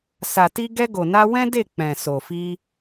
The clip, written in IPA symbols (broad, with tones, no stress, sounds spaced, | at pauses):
s a˨ t i˧ ɡ ɛ˧ ɡ o˨ n a˧ w ɛ̃˦ d e˦˨ k͡p ɛ̃˨ s o˨ f i˧